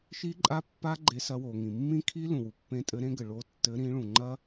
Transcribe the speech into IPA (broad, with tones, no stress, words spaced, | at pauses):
ʃi˦˥ǃʼa˦˥pːa˦˥ ɡ͡ǃe˨˦sɐ˨˦wo˩ ŋĩ˩mːĩ˦˥kʰi˦˥ lũ˩wu˩pːẽ˨˦tʼɘ˨˦ ɾẽ˦˥ɡɘ˩ ɭo˨˦tːɘ˨˦ ɾĩ˨˦ɭũ˩ŋ͡ǃɐ˦˥